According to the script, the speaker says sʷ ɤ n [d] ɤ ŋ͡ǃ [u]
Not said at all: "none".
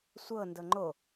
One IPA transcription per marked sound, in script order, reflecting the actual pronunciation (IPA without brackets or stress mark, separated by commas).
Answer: d, o